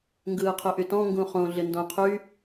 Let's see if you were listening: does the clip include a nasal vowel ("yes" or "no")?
yes